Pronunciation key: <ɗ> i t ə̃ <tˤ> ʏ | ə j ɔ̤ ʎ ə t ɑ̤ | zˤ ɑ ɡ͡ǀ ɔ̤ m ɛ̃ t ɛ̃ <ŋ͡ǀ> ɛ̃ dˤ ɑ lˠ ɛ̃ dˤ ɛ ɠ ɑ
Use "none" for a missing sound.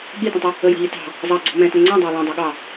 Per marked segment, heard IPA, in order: ɠ, tˤ, ŋ͡ǀ

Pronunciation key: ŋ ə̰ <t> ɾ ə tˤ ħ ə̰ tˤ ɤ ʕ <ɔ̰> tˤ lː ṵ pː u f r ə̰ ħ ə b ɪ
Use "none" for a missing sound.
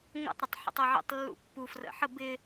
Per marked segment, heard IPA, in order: tˤ, ə̰

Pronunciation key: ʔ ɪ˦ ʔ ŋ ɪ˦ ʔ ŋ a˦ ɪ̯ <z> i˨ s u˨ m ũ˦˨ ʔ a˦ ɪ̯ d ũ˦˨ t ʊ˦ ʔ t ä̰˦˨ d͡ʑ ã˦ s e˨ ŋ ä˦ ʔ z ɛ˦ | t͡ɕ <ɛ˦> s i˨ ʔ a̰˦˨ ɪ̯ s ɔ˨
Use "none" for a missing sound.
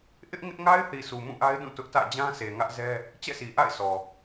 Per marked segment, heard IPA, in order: θ, ɛ̰˦˨

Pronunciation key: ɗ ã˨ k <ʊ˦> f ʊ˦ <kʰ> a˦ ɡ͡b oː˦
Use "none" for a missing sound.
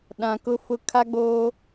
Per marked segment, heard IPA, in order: ʊ˦, kʰ

